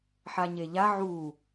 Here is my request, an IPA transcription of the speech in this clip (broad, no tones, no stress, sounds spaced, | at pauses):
ħ a ɲ e ʎ a ʕ u